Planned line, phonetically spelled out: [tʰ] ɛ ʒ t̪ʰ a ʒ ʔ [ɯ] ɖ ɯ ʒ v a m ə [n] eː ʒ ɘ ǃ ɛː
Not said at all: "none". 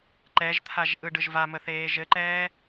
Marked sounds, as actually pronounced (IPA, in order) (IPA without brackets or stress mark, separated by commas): ǃ, ɯ, θ